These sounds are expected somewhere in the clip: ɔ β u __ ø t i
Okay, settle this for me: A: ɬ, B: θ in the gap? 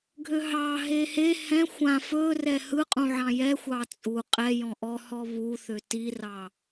B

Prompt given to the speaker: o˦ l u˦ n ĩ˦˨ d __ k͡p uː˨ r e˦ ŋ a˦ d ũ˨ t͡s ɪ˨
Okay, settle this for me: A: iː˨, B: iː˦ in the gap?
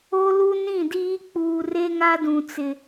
B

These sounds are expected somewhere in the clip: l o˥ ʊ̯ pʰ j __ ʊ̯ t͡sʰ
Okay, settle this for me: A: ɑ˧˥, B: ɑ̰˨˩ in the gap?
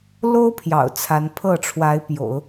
B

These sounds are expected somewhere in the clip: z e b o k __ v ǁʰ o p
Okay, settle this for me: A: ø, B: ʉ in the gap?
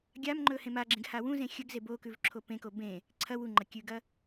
B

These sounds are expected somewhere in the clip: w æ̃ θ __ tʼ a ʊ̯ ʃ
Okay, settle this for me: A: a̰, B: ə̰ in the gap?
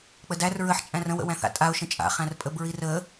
A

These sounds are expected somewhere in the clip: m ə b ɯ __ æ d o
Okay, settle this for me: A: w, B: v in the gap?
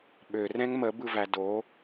B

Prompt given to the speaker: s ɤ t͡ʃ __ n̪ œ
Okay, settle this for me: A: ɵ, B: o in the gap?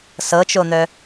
B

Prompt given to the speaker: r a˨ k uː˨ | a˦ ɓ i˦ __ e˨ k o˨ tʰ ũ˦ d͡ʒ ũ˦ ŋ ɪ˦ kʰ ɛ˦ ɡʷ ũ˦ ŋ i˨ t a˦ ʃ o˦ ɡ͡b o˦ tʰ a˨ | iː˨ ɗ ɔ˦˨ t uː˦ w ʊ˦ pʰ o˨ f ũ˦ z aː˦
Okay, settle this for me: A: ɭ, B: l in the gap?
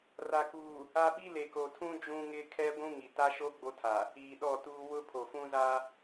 B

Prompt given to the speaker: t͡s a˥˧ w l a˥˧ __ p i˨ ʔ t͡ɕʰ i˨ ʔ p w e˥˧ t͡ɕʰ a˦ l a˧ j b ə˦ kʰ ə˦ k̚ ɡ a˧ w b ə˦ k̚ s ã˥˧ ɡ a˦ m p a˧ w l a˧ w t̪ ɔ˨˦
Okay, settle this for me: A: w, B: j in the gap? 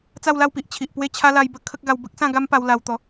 A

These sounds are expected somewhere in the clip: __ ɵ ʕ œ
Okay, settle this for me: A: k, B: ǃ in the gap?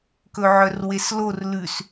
A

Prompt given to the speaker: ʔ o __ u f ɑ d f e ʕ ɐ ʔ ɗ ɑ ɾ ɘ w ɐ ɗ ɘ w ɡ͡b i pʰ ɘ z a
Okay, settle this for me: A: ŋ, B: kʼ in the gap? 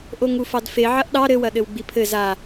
A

